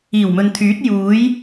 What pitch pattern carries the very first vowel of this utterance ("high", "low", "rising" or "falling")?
low